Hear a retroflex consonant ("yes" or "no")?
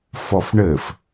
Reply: yes